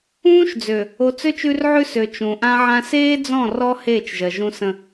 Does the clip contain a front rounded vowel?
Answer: yes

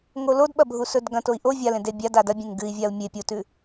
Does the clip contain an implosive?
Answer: yes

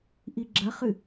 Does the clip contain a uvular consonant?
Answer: yes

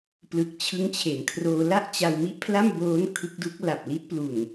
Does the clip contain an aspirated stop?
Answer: yes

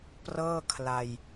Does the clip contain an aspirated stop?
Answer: yes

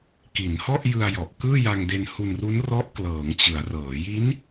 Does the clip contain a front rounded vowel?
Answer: no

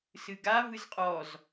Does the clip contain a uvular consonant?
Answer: yes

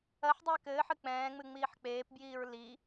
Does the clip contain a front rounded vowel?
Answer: no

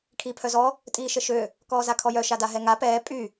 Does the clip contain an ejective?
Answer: yes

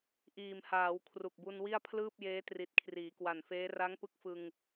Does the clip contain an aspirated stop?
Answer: yes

